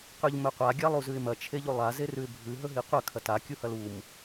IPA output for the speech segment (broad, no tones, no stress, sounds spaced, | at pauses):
q ʉ ʎ m ɵ qʷ a ɡʲ a lˠ u z ʉ ɪ̯ m ɐ t͡ʃʰ e ʎ u lˠ a z e r ʉ ɪ̯ bʱ ʉ ɦ ɵ ɦ i qʷ ɐ kʰ ɐ t a kʲ u h ɐ l u m